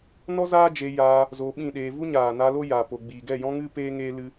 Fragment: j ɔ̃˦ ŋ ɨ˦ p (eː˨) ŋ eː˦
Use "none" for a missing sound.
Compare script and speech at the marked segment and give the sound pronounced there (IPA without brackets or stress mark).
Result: eː˦